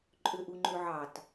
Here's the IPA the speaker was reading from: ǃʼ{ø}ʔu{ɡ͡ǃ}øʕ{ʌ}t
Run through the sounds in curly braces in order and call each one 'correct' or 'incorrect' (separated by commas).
correct, incorrect, incorrect